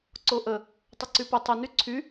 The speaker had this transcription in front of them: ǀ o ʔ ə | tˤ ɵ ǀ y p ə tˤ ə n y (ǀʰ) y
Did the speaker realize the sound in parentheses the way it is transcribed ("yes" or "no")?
yes